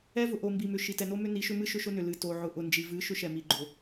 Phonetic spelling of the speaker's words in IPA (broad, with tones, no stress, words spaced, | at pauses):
ɛ˦vʊ˨ ʔo˨mbi˨mʏ˨ ʃi˨tɛ˨no˦ mʏ˦ni˨˦ʃʏ˦mɨ˦ ʃʏ˦ʃʊ˦nʏ˨ lɨ˨ to˨ʕʊ˨ ʔʊ˨nd͡ʒi˨vɨ˨˦ ʃʏ˦ʃɛ˨mi˨ ɡ͡ǃo˨